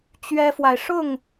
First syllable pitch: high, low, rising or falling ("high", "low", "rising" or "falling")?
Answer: high